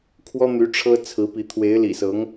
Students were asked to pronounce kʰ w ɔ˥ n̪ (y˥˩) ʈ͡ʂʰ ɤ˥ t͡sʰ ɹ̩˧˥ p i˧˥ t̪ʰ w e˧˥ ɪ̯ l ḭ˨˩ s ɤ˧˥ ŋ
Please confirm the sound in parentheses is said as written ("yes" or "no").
no